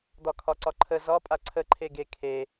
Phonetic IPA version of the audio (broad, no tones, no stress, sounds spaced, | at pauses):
d̪ ɒ kʰ ɒ ǀ ɒ ǃʰ ə z ɒ pʼ a ǀʰ ə ǃʰ e ɡ e kʰ e